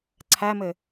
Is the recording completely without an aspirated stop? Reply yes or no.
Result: no